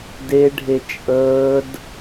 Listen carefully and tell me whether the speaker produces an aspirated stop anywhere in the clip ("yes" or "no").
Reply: no